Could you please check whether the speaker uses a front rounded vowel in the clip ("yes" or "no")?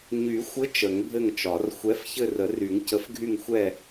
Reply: yes